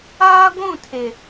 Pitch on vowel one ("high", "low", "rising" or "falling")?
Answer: high